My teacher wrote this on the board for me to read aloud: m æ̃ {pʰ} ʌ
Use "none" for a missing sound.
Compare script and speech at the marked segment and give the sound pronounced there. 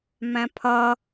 pʰ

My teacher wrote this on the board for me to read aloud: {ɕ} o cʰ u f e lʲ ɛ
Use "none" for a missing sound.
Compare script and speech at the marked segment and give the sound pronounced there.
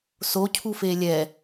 s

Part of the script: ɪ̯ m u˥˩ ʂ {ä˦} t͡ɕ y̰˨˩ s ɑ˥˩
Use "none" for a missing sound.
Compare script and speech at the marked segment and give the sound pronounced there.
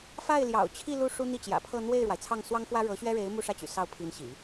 ä˥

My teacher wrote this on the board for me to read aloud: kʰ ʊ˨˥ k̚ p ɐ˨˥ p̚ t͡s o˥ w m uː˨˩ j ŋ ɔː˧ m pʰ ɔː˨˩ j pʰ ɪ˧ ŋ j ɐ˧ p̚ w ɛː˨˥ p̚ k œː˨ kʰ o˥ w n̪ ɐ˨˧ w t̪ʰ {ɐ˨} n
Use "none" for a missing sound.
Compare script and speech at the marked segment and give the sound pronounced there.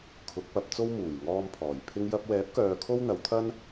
ɐ˥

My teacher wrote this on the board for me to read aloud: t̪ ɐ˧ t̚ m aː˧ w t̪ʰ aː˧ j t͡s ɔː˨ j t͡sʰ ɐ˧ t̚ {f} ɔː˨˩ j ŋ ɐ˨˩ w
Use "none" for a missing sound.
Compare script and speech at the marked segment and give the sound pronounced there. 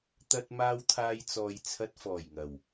f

